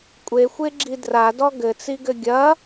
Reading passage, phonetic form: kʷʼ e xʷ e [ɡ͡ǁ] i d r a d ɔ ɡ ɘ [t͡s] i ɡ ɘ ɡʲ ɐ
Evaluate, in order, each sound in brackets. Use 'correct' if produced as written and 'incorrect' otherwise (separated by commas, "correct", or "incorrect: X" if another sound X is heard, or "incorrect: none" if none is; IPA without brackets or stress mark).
correct, correct